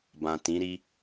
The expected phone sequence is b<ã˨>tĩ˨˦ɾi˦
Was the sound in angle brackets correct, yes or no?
yes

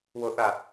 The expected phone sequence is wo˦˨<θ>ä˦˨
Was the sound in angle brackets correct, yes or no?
yes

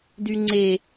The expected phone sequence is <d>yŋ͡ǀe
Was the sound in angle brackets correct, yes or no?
yes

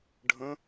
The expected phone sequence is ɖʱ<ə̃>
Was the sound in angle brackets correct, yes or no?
yes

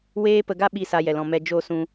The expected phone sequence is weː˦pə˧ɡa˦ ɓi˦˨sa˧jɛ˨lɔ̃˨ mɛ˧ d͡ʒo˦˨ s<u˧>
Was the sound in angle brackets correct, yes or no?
no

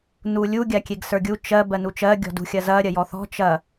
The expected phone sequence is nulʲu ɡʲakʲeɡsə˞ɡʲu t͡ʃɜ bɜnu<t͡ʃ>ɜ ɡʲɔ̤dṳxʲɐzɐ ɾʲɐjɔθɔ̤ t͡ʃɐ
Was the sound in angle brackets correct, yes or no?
yes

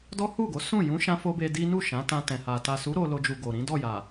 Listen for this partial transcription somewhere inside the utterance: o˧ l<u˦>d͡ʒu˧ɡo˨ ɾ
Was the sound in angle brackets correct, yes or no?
no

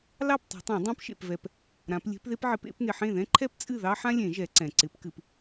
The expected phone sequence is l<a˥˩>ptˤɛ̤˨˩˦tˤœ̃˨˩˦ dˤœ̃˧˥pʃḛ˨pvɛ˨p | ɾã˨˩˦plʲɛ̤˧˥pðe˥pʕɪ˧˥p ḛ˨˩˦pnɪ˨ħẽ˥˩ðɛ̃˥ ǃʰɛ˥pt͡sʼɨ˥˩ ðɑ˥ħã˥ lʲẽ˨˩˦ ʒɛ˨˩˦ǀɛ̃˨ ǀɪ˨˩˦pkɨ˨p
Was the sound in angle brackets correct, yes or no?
no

